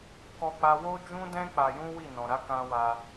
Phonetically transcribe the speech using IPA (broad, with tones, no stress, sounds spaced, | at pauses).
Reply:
k ɔ˦ k͡p a˦ w o˦ d͡ʒ ũ˦ d ɛ̃˦ k͡p a˧ j ũ˦ w i˦˨ n ɔ̃˨ ɾ a˨˦ k ã˦ w a˧